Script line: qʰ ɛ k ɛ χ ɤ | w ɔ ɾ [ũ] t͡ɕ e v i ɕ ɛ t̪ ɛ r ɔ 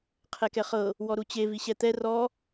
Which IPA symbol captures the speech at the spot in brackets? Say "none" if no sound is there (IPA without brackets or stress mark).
u